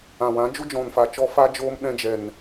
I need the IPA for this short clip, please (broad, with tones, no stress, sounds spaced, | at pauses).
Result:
ã˨ w ã˨˦ d͡ʒ u˦ d͡ʒ ɔ̃˨ n f a˨ t͡ʃ ɔ˧ f a˦ d͡ʒ oː˦ m ɗ ɛ̃˧ d͡ʒ ɛ˨ n